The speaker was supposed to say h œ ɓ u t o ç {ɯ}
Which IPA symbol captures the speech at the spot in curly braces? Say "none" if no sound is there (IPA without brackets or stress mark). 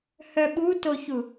u